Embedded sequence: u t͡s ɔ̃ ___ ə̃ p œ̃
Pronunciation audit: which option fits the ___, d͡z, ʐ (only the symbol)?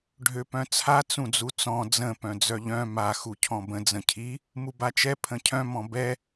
d͡z